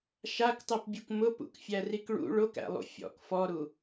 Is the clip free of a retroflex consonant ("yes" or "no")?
no